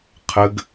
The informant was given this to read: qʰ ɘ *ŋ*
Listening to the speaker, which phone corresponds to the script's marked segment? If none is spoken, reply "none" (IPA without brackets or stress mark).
ɡ